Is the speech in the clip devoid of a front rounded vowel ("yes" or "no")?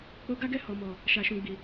yes